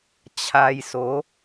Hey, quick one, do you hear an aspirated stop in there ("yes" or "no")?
yes